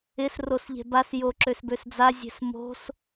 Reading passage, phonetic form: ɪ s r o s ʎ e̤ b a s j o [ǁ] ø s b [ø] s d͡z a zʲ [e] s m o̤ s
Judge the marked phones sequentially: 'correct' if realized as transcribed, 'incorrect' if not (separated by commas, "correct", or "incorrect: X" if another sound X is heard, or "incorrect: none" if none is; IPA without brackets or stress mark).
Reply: correct, correct, incorrect: e̤